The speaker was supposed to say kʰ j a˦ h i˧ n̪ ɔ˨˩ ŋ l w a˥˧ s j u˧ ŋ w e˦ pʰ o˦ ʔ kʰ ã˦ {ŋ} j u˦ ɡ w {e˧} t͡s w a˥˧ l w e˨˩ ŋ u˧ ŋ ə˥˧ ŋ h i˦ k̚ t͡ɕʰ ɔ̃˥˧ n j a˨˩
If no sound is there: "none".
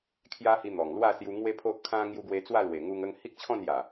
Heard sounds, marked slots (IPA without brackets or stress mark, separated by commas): ŋ, e˧